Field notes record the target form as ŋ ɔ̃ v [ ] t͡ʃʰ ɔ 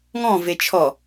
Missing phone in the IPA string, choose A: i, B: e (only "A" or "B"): B